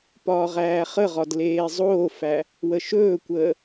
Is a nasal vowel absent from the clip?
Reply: yes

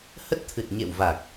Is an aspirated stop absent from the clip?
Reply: no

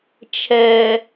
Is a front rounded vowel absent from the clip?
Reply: yes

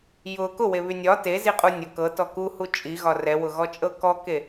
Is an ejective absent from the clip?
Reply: no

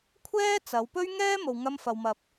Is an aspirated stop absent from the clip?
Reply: no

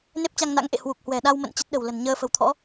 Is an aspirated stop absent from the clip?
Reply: no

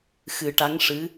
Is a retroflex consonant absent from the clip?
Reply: no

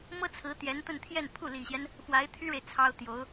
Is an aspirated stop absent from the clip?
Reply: no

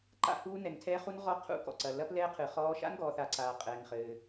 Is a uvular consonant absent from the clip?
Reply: no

